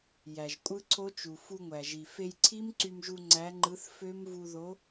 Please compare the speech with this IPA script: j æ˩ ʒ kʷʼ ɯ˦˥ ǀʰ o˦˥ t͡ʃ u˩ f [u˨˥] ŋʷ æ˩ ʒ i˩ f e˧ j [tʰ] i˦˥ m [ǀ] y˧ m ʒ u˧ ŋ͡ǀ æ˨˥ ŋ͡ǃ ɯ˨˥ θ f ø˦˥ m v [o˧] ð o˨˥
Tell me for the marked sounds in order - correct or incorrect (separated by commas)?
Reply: incorrect, incorrect, correct, incorrect